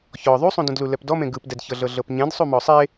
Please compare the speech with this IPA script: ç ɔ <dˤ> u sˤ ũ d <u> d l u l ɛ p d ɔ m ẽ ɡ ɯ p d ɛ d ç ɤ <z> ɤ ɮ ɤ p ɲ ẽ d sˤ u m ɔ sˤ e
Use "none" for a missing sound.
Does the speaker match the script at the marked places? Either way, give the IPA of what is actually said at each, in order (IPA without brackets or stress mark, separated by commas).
ðˤ, ũ, ɮ